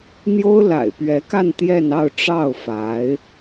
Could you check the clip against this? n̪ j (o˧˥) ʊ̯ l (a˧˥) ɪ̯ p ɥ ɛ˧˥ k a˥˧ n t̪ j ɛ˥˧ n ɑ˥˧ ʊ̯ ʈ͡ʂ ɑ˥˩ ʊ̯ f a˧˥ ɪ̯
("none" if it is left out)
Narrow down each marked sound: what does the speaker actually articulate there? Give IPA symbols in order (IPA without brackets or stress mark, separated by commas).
o˥, a̰˨˩